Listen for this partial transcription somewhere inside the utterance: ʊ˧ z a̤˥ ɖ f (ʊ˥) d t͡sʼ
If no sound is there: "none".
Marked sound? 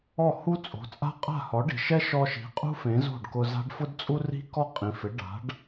ʊ˥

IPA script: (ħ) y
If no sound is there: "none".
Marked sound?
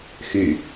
x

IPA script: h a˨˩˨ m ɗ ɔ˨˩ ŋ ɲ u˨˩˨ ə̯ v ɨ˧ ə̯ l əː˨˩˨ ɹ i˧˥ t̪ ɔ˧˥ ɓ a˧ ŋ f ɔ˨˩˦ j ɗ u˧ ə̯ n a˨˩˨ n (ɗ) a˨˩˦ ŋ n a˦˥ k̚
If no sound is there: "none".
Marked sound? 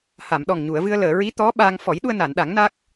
ɗ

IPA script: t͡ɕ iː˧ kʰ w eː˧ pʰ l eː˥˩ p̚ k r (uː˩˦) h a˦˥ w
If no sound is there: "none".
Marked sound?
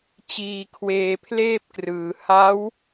ɯː˩˦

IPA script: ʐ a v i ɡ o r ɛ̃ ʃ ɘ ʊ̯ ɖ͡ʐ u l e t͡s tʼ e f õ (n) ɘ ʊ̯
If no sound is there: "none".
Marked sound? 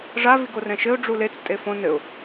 n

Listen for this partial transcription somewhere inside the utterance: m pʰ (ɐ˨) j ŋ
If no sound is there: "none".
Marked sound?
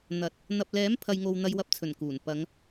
ɐ˨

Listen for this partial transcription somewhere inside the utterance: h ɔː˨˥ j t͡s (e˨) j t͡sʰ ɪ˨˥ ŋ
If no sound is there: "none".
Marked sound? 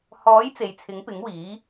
e˨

